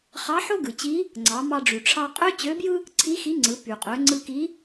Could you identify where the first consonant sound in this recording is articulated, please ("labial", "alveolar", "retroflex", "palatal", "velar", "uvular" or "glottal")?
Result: uvular